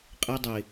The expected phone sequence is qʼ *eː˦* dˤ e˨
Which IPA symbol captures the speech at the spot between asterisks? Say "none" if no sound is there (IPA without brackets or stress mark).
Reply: e˦